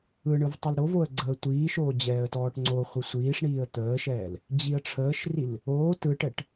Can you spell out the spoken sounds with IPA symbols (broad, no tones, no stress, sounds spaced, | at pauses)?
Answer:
ɯ ɳ ɯ v tˤ ə l ɾ o v o ə̯ ɡ͡ǀ əː tʷ iː ʃ oː d͡ʑ ɛː ə̯ t ɔː ʈ ŋ͡ǀ o χʷ i sʷ iː ʂ ɳ iː ə̯ t̪ əː ʃ ɛː l | d͡ʑ i ə̯ ʈ͡ʂʰ əː ʃ r i l | oː t ɯ ʈ ɛ ʈ